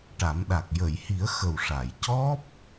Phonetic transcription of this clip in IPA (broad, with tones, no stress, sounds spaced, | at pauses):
ʈ a˨˩˦ m ɗ a˨˩ k̚ j ə˨˩˨ j h i˨˩˦ ə̯ x ə˨˩ w ʂ a˨˩˨ j c ɔ˦˥ p̚